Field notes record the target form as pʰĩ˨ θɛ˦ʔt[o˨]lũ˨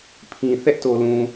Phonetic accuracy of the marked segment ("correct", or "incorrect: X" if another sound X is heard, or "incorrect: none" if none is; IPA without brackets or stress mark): correct